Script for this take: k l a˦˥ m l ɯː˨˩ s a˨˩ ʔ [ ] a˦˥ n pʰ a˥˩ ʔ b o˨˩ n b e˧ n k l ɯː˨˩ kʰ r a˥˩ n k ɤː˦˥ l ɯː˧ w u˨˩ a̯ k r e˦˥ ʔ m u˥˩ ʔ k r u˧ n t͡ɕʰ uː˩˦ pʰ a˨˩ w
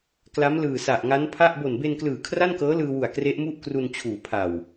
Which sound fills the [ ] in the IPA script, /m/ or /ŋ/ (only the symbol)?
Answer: ŋ